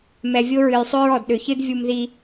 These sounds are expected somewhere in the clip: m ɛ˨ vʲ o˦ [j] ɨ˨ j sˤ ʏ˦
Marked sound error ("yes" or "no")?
yes